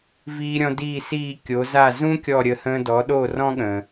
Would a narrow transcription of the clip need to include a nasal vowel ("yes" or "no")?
yes